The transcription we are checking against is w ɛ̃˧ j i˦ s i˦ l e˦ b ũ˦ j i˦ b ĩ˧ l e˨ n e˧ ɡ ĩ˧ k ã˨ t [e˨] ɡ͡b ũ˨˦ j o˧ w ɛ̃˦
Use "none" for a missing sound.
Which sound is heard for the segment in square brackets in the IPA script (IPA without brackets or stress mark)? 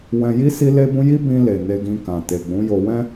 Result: e˨